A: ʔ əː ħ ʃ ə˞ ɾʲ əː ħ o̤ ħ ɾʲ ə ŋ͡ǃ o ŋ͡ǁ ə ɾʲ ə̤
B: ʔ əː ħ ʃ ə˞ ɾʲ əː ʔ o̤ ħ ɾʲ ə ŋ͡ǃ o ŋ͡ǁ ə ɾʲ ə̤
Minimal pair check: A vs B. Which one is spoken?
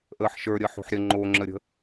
A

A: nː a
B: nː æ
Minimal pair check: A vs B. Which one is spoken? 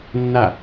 A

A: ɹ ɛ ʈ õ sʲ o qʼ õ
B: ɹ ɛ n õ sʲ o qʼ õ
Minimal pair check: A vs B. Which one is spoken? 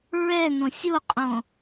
B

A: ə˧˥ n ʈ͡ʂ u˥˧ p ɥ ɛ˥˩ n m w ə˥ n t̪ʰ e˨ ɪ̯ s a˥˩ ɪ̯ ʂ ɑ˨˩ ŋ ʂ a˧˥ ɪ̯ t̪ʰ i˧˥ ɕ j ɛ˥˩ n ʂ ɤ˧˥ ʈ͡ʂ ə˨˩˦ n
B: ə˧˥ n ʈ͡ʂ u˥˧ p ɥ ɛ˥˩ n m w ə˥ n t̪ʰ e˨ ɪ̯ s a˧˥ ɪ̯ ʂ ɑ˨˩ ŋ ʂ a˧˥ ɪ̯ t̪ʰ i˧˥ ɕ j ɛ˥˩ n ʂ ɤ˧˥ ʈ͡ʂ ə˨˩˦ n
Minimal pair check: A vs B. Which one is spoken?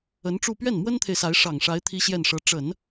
B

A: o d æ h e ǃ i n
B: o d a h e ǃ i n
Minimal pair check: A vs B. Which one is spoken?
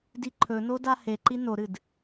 B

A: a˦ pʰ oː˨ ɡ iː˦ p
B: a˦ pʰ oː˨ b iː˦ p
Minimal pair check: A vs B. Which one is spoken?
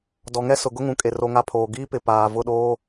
A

